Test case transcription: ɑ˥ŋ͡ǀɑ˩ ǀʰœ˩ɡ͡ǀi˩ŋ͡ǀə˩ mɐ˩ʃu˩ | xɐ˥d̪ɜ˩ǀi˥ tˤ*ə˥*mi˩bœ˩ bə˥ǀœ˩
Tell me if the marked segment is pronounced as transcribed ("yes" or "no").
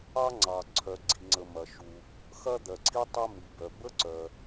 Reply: no